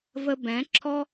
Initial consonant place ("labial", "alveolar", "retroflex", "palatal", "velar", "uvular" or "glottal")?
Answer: labial